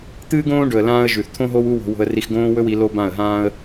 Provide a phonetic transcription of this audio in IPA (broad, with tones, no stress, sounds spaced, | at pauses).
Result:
t̪ ɨː˦ ɡ õː˦ ɖ ɵ˨ ə̯ l ãː˧ ə̯ ʒ ʉ˨ θ t̪ʰ õ˦ ɦ o˦ w u˦ w o̤˧ w o̤˧ ə̯ r i˧ x ɡ õː˦ w ɵ˦ w i˨˦ l o˦ b ã˦˨ ə̯ ɦ ãː˦ ə̯